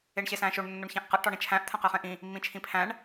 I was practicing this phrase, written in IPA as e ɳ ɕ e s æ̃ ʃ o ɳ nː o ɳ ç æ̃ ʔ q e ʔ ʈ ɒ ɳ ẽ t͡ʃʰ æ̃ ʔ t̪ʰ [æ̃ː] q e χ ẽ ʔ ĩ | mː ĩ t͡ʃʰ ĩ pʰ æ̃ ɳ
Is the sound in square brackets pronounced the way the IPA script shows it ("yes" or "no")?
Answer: no